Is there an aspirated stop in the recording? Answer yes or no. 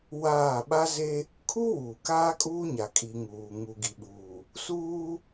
yes